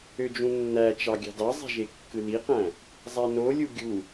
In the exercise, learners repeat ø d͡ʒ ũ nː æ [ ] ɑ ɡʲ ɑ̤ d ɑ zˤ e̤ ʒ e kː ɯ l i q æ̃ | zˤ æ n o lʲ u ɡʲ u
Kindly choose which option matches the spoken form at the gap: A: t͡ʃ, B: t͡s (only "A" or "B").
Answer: A